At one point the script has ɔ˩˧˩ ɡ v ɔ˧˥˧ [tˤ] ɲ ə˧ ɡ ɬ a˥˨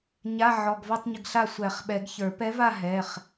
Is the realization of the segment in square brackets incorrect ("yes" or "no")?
no